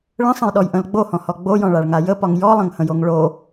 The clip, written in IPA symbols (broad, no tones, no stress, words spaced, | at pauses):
ɭə̃sˤə̃jɗɔjʔə̃l ɡ͡bohɔ̃hɔ ɡ͡bojɔ̃ɭaɭŋa jəpɒŋ jɔlˠə̃ŋhə̃joŋ ɭo